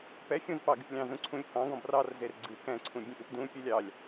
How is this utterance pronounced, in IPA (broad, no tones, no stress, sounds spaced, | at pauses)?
p ɛ xʲ ũ z p ɑ ɡ ɪ p lʲ ɑ̃ z ũ ǀʰ ũ lʲ k ɑ̃ ɡ ɔ̃ b r ɑ r z e r ɡ͡ǀ ɨ k ɛ̃ ǀʰ ũ bʲ ẽ ʔ ɨ p d ũ pʲ u lʲ ɑ lʲ